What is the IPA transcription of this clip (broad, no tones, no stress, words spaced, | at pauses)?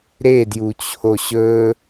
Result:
ɾedjut͡ɕʰo ɕɵ